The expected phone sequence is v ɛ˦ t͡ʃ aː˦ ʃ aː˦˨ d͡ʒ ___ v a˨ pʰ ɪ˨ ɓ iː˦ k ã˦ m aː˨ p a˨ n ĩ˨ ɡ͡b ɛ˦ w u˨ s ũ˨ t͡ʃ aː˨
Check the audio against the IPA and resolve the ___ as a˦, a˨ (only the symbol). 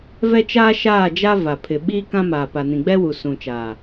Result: a˦